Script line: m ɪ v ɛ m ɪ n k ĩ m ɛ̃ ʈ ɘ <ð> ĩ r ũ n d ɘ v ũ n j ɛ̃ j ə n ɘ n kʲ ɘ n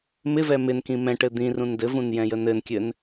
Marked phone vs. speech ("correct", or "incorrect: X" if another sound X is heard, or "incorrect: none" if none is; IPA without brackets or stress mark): incorrect: d̪